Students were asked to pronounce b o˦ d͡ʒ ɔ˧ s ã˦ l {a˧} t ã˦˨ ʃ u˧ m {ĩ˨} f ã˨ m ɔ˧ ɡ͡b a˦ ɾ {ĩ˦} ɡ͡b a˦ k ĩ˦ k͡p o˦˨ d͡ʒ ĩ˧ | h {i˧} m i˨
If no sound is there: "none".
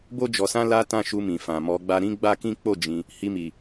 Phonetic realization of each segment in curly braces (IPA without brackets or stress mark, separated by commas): a˦, ĩ˨, ĩ˦, i˧